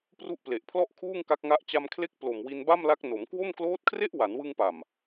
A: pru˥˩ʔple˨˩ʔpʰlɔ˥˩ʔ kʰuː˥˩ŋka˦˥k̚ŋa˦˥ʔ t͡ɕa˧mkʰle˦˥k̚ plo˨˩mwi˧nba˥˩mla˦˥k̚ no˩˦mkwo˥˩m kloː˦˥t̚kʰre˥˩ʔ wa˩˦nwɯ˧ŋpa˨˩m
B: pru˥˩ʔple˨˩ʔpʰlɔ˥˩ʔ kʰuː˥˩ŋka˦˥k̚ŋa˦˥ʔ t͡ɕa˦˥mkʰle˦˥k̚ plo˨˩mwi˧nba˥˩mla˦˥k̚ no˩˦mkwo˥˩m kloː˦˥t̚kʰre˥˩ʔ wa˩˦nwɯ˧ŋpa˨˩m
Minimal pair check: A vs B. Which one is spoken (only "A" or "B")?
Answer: A